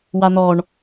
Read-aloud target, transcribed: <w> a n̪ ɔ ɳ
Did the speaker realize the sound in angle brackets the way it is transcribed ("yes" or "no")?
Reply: yes